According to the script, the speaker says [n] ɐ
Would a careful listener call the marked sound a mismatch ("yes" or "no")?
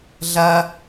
yes